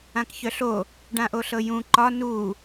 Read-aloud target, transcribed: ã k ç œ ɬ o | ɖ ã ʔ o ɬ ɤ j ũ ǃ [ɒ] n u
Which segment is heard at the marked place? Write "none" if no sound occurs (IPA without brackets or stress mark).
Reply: ɒ